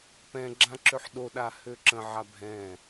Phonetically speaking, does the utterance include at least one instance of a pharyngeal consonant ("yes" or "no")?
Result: yes